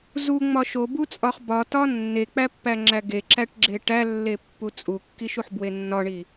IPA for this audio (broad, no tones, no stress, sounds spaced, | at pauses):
z u ŋ͡m ɒ ʃ o b u t͡sʼ ɒ χ b ɒ t ɒ nː e k͡p æ pː æ ŋ͡ǁ æ ɡ e ǁ æ ʈ ɡ͡ǁ e ʈ æ lː e pː u t͡sʼ u kː i ʃ u ħ b w e nː ɒ ɳ i